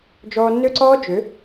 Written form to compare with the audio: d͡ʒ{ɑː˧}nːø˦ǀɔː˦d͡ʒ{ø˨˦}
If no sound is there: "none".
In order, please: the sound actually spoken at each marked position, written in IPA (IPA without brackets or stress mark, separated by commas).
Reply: ɔː˧, ø˨˦